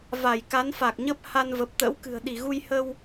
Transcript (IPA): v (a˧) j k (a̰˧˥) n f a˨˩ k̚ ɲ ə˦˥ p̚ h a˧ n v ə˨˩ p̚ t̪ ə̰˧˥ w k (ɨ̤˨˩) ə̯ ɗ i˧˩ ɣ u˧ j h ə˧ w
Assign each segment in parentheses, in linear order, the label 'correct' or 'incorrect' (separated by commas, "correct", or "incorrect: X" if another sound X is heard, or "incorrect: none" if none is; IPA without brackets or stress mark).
incorrect: a˧˩, incorrect: a˨˦, correct